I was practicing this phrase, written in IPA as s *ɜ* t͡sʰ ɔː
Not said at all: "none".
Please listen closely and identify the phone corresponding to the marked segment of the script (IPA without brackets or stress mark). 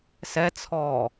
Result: ɛ